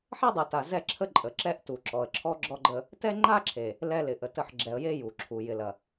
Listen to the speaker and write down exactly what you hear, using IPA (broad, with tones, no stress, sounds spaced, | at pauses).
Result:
ħ ɛ˦ dˤ u˨ t a˨ z ɛ˦ ǁʰ ə˦ ǃʼ ə˨ ǁ ɛ˦ ʔ t u˨ ǁ ɔ˨ ə̯ ǁʰ ɔ˦ ɡ͡ǁ ɔ˦ ɡ͡ǃ ə˦ | t ɛ˦ ŋ͡ǃ a˦ ǁʰ e˨ | l ɛ˦ l ɪ˨ ʔ ə˨ t ə˦˨ ħ ɡ͡ǁ ɛ˨ ə̯ j e˦ j u˨ ǁʰ u˨ j ɪ˨ l ɐ˨